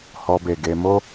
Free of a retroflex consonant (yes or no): yes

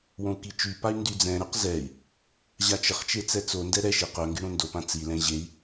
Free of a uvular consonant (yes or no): no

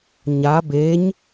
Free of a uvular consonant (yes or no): yes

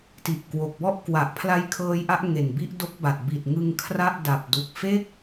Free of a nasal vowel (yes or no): yes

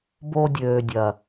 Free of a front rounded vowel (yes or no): no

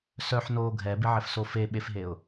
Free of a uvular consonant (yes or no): yes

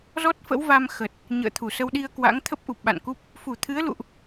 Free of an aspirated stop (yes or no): no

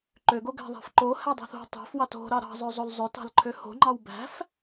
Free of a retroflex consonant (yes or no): yes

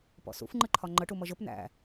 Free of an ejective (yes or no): yes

